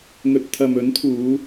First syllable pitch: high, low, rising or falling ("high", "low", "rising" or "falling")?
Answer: rising